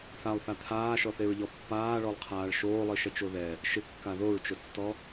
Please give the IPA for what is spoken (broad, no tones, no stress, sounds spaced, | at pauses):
θ a lˠ θ a t̪ʰ aː ʃ ɔ θ e ɹ ʎ ɔ pː aː ɭ ɔ lˠ qʰ aː ɭ ʃ oː lˠ i ʃ ɛ t͡ʃ o ð ɛ | ʃ ɪ kː a ð o ɹ t͡ʃ ʊ tː ɔ